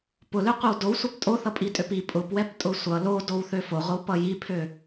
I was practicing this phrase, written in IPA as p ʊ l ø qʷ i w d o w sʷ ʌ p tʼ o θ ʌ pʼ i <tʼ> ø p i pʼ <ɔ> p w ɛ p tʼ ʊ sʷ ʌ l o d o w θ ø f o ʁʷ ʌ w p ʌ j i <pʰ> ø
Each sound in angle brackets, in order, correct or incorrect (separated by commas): correct, incorrect, correct